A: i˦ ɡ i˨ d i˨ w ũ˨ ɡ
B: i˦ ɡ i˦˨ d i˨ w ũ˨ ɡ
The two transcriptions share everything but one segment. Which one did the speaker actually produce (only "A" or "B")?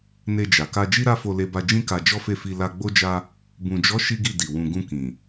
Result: B